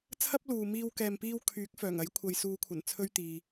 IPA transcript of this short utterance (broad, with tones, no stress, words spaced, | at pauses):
t͡sʰɐ˥p̚luː˨miː˧w kɛː˨mpiː˧wkʰyː˨˥k̚ fœː˨˩ŋɐ˨˥jkʷʰɐ˨j suː˨˧kʷʰɐ˨˩n t͡sʰɵ˥ɥt̪iː˧